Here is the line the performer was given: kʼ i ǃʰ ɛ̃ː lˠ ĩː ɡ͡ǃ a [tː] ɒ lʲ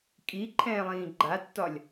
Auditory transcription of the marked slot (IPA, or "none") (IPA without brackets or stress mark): tː